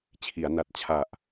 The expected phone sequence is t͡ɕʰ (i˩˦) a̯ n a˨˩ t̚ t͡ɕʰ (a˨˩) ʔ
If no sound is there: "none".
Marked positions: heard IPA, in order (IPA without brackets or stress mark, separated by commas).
i˩˦, a˨˩